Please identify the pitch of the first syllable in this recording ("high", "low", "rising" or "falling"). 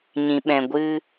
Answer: low